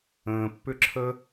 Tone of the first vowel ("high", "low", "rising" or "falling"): low